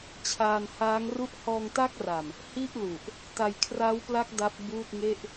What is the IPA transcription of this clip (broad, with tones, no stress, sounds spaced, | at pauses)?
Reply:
t͡ɕʰ aː˧ n h aː˦˥ ŋ r u˥˩ ʔ h ɔː˧ ŋ t a˦˥ k̚ r a˨˩ m | h i˥˩ ʔ l u˨˩ ʔ | t a˧ j kʰ r a˦˥ w p l a˦˥ k̚ d a˦˥ p̚ b uː˥˩ t̚ ŋ e˥˩ ʔ